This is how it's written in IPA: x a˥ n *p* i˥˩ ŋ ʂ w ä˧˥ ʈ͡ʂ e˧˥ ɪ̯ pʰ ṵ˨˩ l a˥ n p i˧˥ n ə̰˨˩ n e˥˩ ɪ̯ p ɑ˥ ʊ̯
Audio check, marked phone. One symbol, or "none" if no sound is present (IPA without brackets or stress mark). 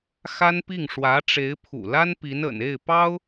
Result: p